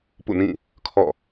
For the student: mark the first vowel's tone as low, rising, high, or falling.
falling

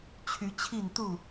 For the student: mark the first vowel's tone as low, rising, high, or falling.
rising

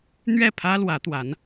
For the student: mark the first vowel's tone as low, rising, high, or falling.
falling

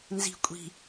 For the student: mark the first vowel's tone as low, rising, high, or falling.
low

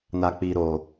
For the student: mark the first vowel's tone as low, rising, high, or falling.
low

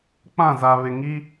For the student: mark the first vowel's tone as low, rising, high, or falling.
falling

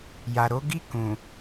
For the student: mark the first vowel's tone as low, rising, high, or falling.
low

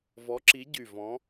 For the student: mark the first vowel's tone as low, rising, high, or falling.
rising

